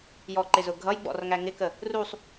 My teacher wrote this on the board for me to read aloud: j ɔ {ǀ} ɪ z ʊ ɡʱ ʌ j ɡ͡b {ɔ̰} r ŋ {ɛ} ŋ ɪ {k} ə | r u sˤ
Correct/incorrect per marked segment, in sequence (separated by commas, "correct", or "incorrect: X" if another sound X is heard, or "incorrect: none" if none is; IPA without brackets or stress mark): incorrect: ǃ, correct, incorrect: æ, correct